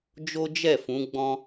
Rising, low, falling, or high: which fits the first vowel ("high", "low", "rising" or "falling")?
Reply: high